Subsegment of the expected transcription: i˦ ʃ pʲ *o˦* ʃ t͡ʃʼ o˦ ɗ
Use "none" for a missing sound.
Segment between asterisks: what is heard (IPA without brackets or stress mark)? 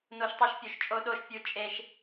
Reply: o˦˨